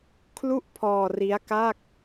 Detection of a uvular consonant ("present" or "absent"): absent